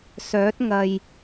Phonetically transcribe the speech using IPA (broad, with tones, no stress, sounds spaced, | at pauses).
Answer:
s œː˨˥ t̚ ŋ ɐ˨ j